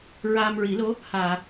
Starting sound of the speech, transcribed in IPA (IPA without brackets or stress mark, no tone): ɹ